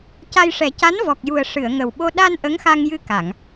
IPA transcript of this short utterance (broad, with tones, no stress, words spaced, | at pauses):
ca˧jʂɛ˨˩˦ca˧˥n vɔ˨˩k̚ju˨˩ə̯ ʂɨ˨˩˨ə̯ŋə˨˩wɓo˧ ɗa˧n ʔə˧˥ŋxa˧ŋjɨ˧ ka˨˩˨ŋ